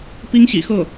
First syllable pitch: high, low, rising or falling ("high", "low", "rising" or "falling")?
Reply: high